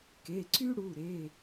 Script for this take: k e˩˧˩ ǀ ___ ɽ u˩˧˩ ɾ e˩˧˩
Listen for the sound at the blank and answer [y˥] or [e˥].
y˥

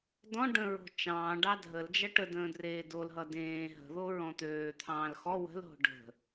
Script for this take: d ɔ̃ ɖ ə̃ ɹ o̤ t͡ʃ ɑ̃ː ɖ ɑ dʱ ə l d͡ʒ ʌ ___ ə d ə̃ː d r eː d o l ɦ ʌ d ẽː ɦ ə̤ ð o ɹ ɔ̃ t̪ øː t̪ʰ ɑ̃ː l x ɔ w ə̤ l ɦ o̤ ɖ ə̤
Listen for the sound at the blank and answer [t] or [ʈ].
ʈ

